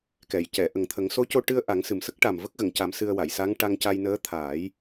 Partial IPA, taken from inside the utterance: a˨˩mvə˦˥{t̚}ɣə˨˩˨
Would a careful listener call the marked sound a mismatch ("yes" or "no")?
yes